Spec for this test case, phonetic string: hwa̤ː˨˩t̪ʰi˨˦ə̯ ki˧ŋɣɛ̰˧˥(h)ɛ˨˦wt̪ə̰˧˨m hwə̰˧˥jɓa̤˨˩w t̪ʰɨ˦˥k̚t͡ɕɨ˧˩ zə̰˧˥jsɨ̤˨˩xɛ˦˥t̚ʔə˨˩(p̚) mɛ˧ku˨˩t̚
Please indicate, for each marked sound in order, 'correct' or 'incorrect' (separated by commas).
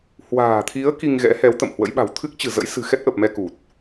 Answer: correct, correct